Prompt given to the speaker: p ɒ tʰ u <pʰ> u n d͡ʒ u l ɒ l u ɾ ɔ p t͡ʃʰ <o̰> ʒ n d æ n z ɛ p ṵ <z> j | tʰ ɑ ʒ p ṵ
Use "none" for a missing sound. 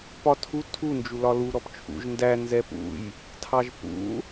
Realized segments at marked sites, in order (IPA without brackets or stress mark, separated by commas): tʰ, ṵ, none